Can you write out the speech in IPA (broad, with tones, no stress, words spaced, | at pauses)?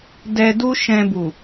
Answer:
dɛ˧du˦ ʃɛ̃˧bu˨